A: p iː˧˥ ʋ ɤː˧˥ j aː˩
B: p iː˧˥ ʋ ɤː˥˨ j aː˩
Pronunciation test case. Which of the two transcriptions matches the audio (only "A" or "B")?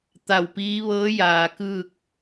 A